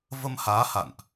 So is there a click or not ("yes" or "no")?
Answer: no